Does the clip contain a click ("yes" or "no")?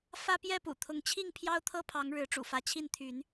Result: no